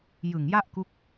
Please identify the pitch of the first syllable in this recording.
low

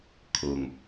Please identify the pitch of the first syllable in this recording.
low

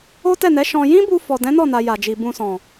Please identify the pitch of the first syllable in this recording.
high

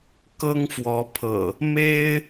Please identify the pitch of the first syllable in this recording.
high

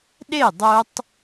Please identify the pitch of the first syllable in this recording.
falling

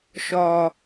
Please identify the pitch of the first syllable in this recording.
low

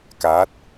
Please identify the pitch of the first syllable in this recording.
rising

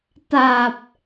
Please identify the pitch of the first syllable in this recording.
low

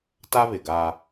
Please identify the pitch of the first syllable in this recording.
high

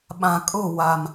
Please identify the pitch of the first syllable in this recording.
low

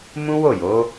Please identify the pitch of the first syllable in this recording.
high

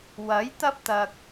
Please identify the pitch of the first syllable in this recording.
rising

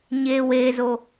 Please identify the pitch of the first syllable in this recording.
high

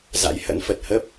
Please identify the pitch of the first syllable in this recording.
rising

